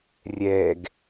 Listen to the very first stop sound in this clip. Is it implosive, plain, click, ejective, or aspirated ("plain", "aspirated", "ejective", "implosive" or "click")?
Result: plain